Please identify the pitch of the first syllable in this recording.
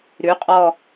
rising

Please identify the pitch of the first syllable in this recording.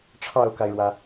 falling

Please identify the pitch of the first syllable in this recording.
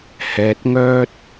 low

